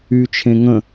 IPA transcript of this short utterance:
yt͡ʃʰẽ ŋə̃

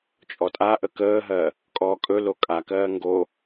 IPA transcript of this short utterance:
t͡ʃʼɔtʼaʔə kəːɦɜ | kʼɔːkʼɵlo kʼakɜː ŋɡo

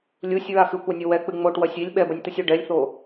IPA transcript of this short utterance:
lʲusʲɹa xɨkʷanʲo wɛk͡pɨ ŋ͡moʈwɐsʲ ilʲ ɓɛbɐnʲt̪ɨsʲu ɖɛlʲθo

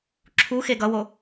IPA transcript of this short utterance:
ǁʰu xeɡʌwo

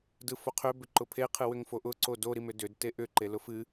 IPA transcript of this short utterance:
dɯfoqʰʏ bʏǃʊpʰe qʰɨwʏŋfoʔʊ ǀodo ɾimʏdʏd teʔʏ ǃelʊfɨ

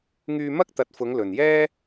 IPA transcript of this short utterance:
ŋyː˧mɐ˥k̚t̪ɐ˨˥t̚fʊ˨˧ŋ lɵ˨njɛː˥

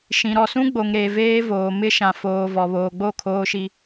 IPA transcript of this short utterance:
ʃĩ˨ɾɔ˨sũ˦ɡ͡bo˨ŋ ɾe˨ veː˦ voː˨mɪ˦ʃã˨ foː˨ vɔ˨βoː˨ɡ͡bo˦˨ kʰoː˦ʃi˦

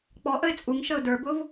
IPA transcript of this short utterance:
k͡pɔ ʔəɪ̯t͡sʼuŋʃəʊ̯ də˞bʊv

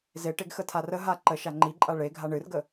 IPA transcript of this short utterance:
zeʈeɡ xətʰarəɦa ǃəʃa ŋ͡ǃiǃʼa ɭe ɡʱaɳɨrɡə

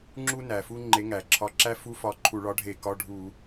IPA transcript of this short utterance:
ŋ͡ǁu˥ næ˩fu˥ ŋ͡ǃe˨˥ŋæ˩ǁʰɒ˧˥˧ ǁæ˥ fu˧˥˧fɒ˧˩˧ ǃʰu˧˩˧ɭɒ˨˥ɖʱe˧˩˧ kɒ˧˥˧ ɖʱu˧˩˧

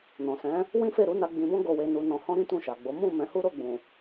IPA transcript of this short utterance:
nɔ̃˨sɛ̃˨˦ | wĩ˦fe˦˨ɾu˨˦na˧ ɡ͡bĩ˧bɔ̃˦ ɡo˧we˧ nu˧nɔ̃˧hɔ̃˦ ɾĩ˦tũ˦˨ʃa˨ɡ͡bo˨˦ mũ˦˨ mɛ̃˨˦hu˦ ɾo˦˨ɡ͡bũ˨

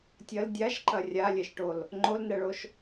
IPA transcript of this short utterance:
tʲɐl dʲaʃǃɐ rʲalʲɛʃʈol | ŋ͡ǃolnɛɭoʃ

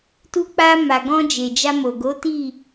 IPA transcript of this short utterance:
tu˧k͡pa˧ ma˨ɡɔ̃˧ d͡ʒe˨d͡ʒa˧mo˨ɡo˨˦ ti˦˨

